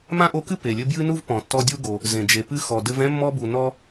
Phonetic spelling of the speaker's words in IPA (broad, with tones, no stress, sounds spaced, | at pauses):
m ã˥ ʔ o˦ k ɨ˥ p e˩ lʲ ɘ˦ b j ɨ˥ n u˥ v p ɔ̃˩ tː ɔ˦ dʲ u˥ ɡ o˩ | z ẽ˩ d͡ʒ e˩ p ɨ˦ x ɔ˩ d ɘ˦ v ɛ̃˥ mː ɔ˦ b u˩ n ɔ˦